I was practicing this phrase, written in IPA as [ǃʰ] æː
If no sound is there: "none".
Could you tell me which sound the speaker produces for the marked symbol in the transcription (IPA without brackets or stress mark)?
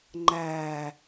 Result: ŋ͡ǃ